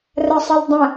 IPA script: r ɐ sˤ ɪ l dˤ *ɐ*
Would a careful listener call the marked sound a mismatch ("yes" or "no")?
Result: yes